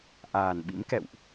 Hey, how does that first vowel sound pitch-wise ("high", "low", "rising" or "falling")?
low